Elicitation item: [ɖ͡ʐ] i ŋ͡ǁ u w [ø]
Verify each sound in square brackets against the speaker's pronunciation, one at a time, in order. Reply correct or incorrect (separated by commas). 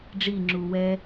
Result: correct, incorrect